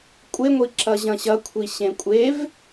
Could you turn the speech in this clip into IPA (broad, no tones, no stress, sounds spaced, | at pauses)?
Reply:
kʷʼ e ŋʷ i ǁ ɐ ʑ ɐ̃ ɕ ɐ kʷʰ i ɕ ẽ kʷʼ e v